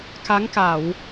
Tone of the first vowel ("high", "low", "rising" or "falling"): rising